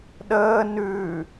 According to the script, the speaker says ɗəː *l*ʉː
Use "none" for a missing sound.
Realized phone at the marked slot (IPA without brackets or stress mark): n